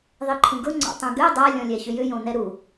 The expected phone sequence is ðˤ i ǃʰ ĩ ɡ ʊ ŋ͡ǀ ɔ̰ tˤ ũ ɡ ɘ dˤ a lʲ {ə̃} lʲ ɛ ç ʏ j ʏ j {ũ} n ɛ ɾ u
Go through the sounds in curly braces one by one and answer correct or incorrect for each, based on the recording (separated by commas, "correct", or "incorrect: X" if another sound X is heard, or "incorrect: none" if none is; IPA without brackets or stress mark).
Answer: incorrect: ɔ̃, incorrect: õ